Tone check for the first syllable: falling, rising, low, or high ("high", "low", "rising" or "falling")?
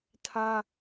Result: high